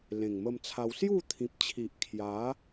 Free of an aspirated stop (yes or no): no